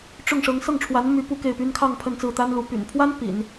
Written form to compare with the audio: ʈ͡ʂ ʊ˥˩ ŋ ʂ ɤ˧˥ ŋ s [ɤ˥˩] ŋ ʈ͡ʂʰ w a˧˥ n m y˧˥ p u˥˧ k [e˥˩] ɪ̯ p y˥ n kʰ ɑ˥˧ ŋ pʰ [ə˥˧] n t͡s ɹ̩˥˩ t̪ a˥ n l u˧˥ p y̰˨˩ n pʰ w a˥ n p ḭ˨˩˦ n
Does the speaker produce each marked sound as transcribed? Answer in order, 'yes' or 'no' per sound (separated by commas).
yes, yes, yes